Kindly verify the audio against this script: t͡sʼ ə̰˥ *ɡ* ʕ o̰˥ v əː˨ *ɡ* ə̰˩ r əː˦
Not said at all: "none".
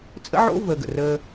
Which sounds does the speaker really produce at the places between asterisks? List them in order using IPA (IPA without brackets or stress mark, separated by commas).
none, ɡ